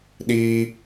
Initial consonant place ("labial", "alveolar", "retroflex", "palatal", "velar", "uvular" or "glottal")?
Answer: alveolar